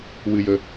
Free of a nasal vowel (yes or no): yes